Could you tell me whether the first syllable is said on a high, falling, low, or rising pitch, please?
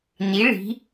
rising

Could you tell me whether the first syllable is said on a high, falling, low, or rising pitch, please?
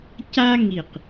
high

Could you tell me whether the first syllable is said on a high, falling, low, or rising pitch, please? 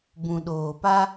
low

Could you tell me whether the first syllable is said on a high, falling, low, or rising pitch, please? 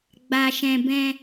low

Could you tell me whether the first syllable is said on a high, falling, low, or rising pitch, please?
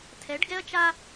rising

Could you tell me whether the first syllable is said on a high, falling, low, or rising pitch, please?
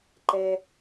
low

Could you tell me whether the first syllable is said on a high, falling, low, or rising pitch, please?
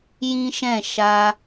high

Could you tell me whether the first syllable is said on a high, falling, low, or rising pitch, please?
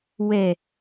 low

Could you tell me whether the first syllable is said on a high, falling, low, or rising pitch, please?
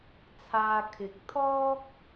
high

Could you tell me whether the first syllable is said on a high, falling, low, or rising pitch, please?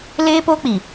high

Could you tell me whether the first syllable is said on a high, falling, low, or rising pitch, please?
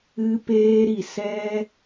high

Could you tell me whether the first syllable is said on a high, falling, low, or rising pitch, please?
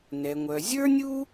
low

